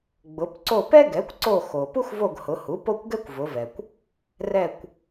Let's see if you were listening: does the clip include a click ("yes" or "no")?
yes